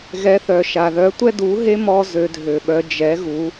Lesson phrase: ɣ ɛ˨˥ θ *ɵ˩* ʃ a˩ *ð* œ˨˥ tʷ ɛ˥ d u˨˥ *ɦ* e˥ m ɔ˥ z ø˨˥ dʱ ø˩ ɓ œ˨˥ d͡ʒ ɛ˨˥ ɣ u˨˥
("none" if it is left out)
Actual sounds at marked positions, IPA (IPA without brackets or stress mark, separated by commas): œ˩, ð, ɦ